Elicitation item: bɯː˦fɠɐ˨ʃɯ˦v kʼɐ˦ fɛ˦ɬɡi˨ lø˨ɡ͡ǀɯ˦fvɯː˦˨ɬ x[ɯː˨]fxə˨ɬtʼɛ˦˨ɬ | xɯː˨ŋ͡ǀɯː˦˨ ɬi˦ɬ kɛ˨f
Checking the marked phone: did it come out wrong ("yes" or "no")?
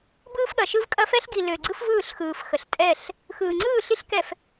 no